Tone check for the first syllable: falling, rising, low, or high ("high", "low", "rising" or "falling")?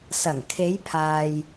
low